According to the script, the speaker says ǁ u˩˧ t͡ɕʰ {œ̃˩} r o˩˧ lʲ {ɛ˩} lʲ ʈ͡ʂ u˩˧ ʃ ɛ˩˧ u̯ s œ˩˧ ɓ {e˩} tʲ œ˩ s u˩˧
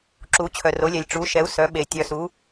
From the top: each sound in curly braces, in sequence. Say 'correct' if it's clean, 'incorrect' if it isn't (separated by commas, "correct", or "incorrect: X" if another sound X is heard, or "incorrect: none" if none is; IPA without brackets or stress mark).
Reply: incorrect: œ˩, correct, correct